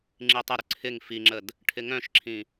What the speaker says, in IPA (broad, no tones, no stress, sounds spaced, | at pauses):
ŋ͡ǁ i tˤ ə ɾ ʏ ǀʰ ɪ ŋ f i ŋ͡ǁ ə d | ʈʰ ɪ ŋ œ̃ ʃ ǁʰ ĩ